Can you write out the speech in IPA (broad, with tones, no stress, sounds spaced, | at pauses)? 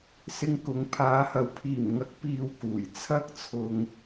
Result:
s ɪ˧ ŋ k ʊ˨˧ ŋ pʰ aː˨˥ h ɐ˨˧ w pʰ iː˨˩ m ŋ ɐ˨˥ k̚ p iː˧ w k uː˨˩ j t͡sʰ ɐ˥ k̚ t͡sʰ ʊ˧ ŋ